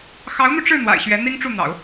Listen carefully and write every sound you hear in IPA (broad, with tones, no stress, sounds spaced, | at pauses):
x ɑ˧˥ ʊ̯ n̪ u˧ ʈ͡ʂ ɻ̩˥˩ n̪ w a̰˨˩ ɪ̯ ɕ ɥ ɛ˧˥ n̪ i˥ ŋ ʈ͡ʂ u˥˩ n̪ ɑ̰˨˩˦ ʊ̯